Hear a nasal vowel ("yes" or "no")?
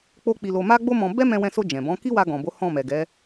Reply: yes